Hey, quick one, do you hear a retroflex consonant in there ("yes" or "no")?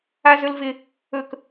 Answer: no